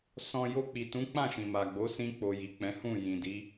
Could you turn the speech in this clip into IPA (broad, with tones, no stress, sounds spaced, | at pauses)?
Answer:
s ɔ̃˧ j o˧ k͡p i˨ t ũ˨˦ k͡p ã˦˨ ʃ ĩ˨ m a˨ ɡ͡b o˨˦ s ĩ˧ k͡p o˨ j i˨ k͡p ɛ̃˨˦ h ũ˦˨ j ĩ˨ d i˨˦